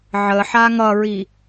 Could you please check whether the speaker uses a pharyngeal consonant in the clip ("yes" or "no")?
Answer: yes